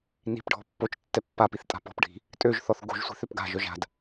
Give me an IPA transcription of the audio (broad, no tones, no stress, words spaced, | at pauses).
ni̤pɖʱɔ̤ pːot͡ʃ tːɛpːapiθ tʼa̤pɔ̤pɖʱi̤ | tʼøʒθɔθ ɡo̤ʒsʷi̤θ øpɡa̤ʒœʒ a̤d